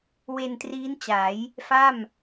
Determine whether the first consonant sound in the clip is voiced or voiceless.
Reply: voiced